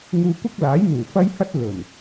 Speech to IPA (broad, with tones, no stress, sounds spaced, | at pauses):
ŋ uː˧ kʷ ɐ˥ k̚ l aː˨˥ j n̪ uː˨˩ f ɐ˥ j h ɐ˥ t̚ l ɵ˨˩ n